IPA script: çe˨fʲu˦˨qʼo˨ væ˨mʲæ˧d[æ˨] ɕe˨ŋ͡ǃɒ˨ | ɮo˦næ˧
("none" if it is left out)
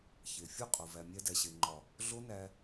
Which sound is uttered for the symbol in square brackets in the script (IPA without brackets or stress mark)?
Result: æ˨